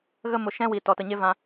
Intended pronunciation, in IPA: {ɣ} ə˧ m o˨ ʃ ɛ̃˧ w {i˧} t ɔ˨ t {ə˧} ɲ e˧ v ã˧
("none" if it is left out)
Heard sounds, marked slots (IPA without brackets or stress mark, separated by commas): ɣ, i˨, ə˨